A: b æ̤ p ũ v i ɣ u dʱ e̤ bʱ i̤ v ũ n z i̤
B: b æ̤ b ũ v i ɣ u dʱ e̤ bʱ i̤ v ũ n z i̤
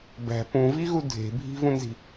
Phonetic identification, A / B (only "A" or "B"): A